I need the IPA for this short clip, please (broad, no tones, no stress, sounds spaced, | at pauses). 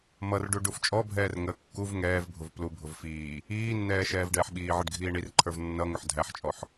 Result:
m ʌ r ɖ u ɖ u f t͡ʃʼ ɔ bʱ ɛː r ŋ ə kː u v ŋ ɛː v bʱ ʊ v p l u bʱ ʊ v f iː | iː nː ɛː ʃ ɛː v ɖ ɛː ħ ɓ iː ʕ ə ɖ ɡʱ iː ɳ i r ǃʰ ə˞ v nː ʌ ŋ ʊ ħ dʱ æ ħ t͡ʃʼ ɔ ħ